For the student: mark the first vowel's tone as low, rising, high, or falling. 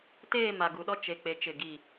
falling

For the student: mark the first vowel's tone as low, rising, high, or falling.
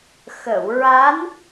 low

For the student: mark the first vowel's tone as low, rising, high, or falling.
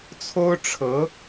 high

